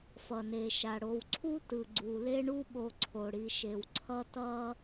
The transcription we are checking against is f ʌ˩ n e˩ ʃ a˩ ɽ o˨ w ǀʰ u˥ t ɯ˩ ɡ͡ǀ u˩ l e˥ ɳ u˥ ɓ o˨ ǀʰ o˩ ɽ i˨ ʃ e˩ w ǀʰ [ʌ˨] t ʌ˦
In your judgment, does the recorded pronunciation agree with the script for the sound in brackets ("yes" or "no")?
no